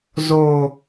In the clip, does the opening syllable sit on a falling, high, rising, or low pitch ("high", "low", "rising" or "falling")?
low